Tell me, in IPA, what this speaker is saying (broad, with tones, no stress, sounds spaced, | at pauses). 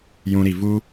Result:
j ũ˧ ɾ i˨ v u˦